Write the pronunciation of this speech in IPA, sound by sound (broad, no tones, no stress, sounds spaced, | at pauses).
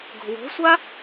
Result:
ɡ o̤ w o̤ sʷ a